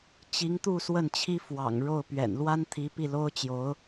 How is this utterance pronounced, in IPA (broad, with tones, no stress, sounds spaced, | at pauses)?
t͡ɕ i˧˥ ŋ t̪ u˥˧ s w ə˥˩ n t͡ɕʰ i˥ f w ɑ̰˨˩ ŋ ɻ o˥˩ ʊ̯ p ɥ ɛ̰˨˩ n l w a˥ n t̪ʰ i˧˥ p i˥˩ l o˥ ʊ̯ t͡ɕ j o˧˥ ʊ̯